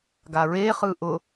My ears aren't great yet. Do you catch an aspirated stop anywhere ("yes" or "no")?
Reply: no